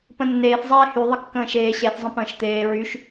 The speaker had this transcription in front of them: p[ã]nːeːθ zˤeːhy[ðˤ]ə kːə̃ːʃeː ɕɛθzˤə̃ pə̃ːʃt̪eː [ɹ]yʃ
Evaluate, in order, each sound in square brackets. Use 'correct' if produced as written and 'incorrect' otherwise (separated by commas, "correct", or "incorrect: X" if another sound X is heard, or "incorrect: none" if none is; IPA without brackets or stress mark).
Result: incorrect: ə̃, correct, correct